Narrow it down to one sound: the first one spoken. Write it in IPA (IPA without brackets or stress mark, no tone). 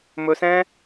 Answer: m